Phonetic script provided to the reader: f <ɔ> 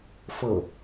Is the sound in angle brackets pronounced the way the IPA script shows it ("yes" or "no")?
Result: no